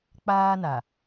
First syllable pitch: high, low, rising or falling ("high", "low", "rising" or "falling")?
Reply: high